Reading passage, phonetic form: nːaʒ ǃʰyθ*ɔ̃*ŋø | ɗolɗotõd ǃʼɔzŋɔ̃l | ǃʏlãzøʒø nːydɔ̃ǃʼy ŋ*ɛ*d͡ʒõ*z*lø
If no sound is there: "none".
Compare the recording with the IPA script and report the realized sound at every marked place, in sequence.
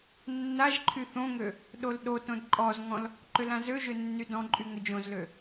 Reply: õ, ʏ, z

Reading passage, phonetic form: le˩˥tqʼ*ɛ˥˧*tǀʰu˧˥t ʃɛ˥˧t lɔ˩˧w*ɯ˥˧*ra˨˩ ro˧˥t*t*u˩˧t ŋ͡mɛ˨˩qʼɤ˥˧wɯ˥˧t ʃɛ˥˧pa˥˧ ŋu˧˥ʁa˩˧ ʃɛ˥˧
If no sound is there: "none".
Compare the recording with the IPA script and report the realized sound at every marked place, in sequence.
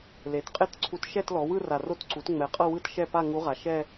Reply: e˥˧, ɯ˥˧, ǀ

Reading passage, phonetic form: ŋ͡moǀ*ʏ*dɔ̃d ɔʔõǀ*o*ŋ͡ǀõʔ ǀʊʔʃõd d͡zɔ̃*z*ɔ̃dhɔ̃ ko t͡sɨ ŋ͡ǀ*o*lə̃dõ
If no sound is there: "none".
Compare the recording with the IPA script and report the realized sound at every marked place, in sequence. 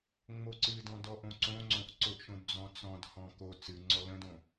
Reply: ɨ, õ, t͡s, ɔ

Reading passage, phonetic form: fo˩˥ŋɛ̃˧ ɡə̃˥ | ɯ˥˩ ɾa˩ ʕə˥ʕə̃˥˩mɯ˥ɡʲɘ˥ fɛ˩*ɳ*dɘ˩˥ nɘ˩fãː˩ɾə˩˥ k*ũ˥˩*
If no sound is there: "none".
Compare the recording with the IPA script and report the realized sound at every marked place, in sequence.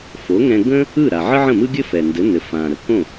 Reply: n, õ˥˩

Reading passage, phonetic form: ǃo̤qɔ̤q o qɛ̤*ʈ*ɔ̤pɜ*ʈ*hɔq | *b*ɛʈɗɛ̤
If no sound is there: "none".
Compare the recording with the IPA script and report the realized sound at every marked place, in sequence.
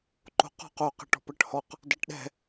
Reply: ʈ, ʈ, d

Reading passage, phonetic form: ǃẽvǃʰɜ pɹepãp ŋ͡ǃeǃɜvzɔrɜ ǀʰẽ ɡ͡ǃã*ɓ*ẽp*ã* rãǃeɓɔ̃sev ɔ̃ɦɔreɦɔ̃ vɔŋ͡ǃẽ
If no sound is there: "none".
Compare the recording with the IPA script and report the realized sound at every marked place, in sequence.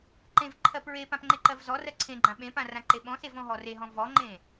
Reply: ɓ, ã

